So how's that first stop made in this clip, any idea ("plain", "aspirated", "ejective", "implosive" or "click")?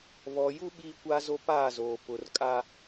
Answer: implosive